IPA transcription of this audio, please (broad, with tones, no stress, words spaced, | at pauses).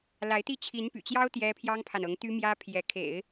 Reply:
la˧˥ɪ̯t̪i˥˩ t͡ɕʰi˧˥npy̰˨˩t͡ɕjɑ˥ʊ̯ t̪jɛ˥ pʰjɑ˥ŋpʰa˨nɤ˧˥ŋt̪y˥ mjä˥ pʰjɛ˧˥ kʰḛ˨˩˦ɪ̯